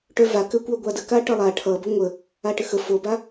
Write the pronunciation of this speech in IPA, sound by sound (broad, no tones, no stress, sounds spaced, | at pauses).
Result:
ʈ œ v a k ɘ kʷ œ ɡʷ a d ə k a ʈ ʌ lˠ a ʈʰ ʌ b ə ŋʷ ə | a ʈ ɘ x ə f o b a